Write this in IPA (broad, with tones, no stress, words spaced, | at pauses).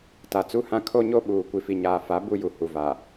ta˨t͡su˦hã˦ kʰo˦ɲo˦ɓuː˨ kʷi˨fi˨ɲaː˨fa˨˦ bu˦ju˨ hu˨va˨